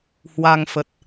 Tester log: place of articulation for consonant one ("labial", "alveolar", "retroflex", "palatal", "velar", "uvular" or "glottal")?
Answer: glottal